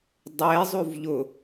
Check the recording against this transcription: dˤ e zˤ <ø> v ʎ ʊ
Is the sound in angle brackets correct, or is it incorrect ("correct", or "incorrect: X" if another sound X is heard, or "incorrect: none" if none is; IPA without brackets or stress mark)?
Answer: incorrect: u